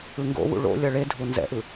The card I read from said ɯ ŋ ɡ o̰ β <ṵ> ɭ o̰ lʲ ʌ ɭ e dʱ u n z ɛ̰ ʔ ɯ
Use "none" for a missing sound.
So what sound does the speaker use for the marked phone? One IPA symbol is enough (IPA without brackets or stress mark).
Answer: ṵ